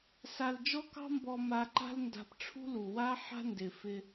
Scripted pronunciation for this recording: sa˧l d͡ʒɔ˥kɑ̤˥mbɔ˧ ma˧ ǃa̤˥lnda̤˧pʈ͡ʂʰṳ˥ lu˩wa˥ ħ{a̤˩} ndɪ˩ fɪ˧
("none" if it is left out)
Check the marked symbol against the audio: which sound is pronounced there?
a̤˥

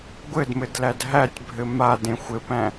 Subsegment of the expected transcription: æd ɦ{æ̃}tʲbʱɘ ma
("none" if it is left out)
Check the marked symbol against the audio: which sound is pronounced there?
æ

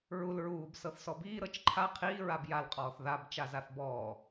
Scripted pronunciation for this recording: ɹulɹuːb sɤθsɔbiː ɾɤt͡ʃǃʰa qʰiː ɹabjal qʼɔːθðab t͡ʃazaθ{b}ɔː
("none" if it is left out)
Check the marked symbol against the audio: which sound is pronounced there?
b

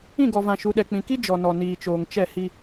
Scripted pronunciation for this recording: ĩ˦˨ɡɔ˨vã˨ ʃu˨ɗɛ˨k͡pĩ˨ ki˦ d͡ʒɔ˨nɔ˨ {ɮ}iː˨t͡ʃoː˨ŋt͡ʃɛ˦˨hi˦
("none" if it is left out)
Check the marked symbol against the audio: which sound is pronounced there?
n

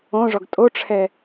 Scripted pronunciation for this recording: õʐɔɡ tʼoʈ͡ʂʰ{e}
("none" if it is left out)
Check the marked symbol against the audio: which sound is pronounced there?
ɛ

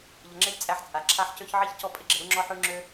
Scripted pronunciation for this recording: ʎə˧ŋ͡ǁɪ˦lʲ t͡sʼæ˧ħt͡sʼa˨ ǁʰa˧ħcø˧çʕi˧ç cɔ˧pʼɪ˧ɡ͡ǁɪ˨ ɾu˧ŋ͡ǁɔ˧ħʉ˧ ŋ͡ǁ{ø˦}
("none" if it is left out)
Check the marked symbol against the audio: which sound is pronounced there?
ø˦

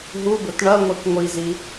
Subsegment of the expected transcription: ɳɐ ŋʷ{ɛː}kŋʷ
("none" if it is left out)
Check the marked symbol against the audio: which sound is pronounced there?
ɛ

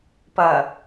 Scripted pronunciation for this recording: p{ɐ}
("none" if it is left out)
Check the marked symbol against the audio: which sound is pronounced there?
ɐ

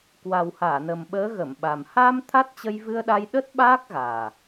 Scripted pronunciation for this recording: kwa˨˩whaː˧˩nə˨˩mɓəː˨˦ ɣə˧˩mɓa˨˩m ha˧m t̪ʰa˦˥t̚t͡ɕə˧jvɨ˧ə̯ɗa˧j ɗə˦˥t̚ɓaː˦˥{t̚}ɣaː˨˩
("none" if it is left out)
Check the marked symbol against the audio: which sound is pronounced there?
k̚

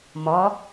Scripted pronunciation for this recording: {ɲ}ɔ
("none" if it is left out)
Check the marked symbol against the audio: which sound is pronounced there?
m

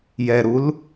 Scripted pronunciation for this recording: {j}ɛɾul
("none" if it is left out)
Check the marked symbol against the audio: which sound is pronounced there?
j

